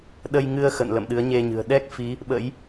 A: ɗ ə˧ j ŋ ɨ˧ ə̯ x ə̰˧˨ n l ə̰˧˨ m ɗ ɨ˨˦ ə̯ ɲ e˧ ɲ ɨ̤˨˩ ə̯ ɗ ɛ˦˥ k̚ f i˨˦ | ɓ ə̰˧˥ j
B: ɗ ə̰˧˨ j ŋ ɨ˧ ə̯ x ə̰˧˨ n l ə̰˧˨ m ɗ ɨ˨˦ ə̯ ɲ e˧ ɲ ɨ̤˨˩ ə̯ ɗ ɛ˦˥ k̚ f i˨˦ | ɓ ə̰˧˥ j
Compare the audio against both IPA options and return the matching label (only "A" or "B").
A